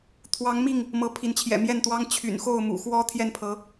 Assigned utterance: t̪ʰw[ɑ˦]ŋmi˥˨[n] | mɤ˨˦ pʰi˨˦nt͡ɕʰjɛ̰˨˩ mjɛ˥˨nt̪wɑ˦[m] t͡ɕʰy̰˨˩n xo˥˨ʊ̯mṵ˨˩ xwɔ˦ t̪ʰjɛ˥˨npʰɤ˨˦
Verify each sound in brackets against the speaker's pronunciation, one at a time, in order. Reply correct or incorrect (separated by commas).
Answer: incorrect, incorrect, incorrect